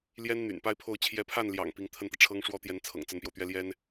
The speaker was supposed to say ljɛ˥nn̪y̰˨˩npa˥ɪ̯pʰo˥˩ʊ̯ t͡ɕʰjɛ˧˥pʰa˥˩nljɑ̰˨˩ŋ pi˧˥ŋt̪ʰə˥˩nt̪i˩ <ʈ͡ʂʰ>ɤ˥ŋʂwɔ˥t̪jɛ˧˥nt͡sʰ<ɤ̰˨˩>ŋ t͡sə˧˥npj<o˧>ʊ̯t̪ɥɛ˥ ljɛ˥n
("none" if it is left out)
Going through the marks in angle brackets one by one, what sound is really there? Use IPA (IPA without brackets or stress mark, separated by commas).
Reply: ʈ͡ʂʰ, ɤ̰˨˩, o˧